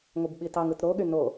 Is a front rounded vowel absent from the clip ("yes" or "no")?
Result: no